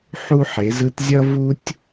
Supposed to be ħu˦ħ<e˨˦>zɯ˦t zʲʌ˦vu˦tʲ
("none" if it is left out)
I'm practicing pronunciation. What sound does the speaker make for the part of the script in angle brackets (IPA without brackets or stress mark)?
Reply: e˨˦